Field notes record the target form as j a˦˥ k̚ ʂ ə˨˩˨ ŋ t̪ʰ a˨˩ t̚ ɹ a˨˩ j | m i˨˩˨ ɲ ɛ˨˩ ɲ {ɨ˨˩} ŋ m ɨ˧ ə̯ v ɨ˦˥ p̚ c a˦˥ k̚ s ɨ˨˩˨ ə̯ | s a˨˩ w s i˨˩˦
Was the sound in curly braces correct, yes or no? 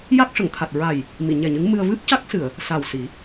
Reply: no